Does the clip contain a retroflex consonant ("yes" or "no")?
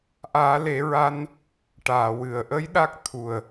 yes